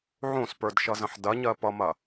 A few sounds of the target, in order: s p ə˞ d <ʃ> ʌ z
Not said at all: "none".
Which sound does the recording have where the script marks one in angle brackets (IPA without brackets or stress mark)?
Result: ʃ